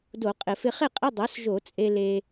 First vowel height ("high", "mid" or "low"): mid